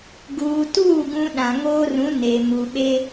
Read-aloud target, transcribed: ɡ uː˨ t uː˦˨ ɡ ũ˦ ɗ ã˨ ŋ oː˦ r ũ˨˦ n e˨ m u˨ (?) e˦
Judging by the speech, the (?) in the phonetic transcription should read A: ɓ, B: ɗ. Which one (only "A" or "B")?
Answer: A